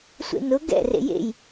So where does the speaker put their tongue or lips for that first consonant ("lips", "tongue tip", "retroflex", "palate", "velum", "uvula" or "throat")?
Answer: tongue tip